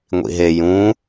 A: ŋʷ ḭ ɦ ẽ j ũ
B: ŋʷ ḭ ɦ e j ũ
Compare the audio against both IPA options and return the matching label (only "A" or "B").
B